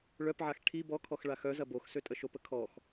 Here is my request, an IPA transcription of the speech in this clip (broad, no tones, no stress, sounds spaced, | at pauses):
ɭ œ p ʕ a x ʈʰ i b ɔ kʰ ɔ x ɭ a x œ z ɐ b o x s ø tʼ ə ʃ o p ə kʰ ɔ x